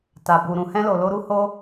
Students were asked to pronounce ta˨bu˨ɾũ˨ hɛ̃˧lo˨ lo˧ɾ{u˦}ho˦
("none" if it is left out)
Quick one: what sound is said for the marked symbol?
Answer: u˦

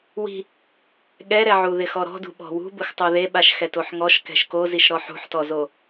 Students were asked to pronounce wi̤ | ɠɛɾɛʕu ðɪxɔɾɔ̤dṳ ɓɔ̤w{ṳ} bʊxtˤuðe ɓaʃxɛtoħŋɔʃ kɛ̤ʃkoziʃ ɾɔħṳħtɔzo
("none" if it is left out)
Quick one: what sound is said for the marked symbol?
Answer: ṳ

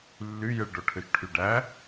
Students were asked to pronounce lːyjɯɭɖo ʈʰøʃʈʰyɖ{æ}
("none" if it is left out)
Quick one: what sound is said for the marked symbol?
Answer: æ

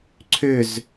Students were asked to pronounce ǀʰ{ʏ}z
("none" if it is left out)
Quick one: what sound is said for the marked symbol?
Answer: ʏ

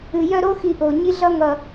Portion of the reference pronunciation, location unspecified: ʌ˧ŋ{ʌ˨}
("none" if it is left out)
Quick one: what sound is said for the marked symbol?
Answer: ʌ˨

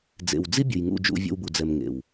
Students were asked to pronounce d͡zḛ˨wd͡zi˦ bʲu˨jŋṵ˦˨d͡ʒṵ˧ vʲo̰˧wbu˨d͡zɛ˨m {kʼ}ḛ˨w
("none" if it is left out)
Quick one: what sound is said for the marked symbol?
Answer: ŋ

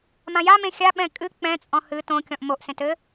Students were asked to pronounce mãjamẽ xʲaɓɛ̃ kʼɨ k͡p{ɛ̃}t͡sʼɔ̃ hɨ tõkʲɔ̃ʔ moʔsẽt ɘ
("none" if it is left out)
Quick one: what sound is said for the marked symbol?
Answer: ɛ̃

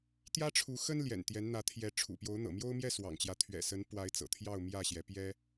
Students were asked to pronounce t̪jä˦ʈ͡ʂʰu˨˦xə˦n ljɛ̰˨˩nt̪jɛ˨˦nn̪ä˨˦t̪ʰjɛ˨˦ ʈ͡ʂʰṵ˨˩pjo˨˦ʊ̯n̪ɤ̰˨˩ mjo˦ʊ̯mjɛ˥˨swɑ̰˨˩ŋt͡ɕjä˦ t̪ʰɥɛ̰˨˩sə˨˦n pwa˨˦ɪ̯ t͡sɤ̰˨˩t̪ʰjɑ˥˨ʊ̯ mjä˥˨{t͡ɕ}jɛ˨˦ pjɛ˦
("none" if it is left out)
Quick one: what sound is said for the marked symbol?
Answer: ɕ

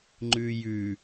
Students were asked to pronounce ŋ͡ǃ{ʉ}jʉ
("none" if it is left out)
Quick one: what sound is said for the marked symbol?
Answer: ʉ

